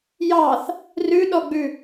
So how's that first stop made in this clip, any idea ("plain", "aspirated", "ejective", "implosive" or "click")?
implosive